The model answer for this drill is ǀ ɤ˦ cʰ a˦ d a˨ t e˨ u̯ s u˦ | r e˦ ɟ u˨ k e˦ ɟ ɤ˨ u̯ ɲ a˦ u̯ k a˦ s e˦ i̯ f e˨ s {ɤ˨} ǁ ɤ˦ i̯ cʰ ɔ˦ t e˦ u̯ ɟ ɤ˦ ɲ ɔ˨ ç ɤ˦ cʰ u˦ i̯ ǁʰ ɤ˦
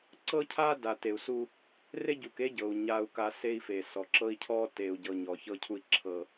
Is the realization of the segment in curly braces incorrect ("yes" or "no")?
yes